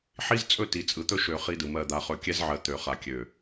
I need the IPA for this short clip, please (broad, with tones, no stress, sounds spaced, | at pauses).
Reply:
ħ i˦ z t͡sʼ ɵ˦ t i˨ t͡sʼ ɯ˨ t̪ ɵ˦ ʃ ø˨ χ i˦ d ɯ˨ m ɜ˨ d̪ a˨ χ ɵ˨ kʲ ɛ˦ z ʕ ɜ˨ t̪ ø˨ χ a˨ kʲ ø˨